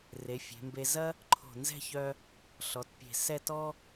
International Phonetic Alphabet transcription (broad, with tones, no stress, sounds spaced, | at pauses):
r e˩˧ fʲ e̤˩˧ m b e˧ z ɐ˥ | ǃʰ o̤˧˩ n z ɛ̤˥˧ ç œ˧ | ɬ ɔ˩˧ t pʲ e̤˧˩ s ɛ˥˧ t ɔ˥